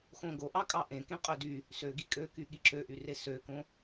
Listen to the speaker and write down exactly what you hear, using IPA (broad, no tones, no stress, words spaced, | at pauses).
xõɡo ʔɑkʼɑʔẽ kẽqʼødy | søɡi kʼøky ɠiǁøʔyre søkõ